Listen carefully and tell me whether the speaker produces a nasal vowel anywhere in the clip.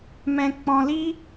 yes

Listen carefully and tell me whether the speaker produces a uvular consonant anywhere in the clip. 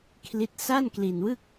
no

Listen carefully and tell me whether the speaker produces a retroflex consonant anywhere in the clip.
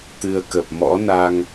no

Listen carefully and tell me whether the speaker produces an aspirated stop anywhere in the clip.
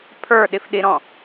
yes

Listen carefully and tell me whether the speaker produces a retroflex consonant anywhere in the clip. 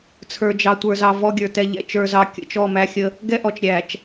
no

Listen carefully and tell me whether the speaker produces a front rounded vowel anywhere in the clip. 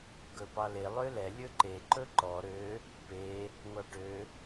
yes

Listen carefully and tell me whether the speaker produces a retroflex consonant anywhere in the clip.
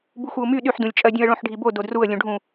yes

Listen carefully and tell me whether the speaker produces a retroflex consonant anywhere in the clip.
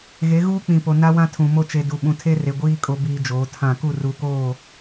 no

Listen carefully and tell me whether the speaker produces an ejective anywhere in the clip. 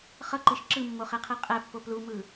yes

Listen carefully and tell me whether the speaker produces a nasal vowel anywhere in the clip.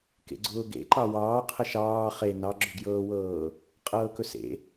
no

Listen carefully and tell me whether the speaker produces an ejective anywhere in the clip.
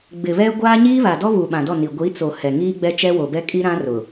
yes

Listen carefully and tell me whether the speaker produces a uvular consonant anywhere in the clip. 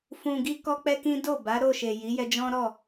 no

